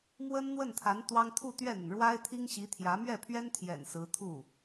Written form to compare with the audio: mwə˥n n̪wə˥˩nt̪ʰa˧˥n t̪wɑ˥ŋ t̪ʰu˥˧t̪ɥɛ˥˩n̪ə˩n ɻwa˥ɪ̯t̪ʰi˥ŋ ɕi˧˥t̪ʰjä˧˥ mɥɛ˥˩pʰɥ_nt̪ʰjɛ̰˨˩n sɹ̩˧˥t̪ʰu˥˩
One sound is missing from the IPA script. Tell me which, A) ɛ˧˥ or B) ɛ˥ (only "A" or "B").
B